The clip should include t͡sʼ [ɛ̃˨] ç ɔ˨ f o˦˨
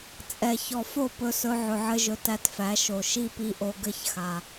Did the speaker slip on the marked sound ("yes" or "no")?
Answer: yes